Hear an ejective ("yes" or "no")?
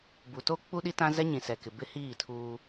no